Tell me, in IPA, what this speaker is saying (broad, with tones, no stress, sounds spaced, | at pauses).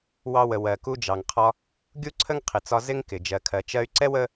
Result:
w ɑ˧ w ə˩ w ɜ˩ k u˧ d͡ʒ ɑ˩ ŋ qʰ ɒ˧ | ɡʲ u˥ ǀʰ ə˥ ŋ qʰ ɪ˩ t͡s ɒ˧ z ɪ˥ ŋ k ɪ˩ d͡ʒ ɜ˩ kʰ ɜ˩ t͡ʃ ɜ˧ y̯ ǀ ɛ˥ w ə˥